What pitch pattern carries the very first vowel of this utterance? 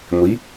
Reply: rising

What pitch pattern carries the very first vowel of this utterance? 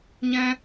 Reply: high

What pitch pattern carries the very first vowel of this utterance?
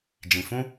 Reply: low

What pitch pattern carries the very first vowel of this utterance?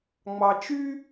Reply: low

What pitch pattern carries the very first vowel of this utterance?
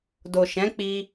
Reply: low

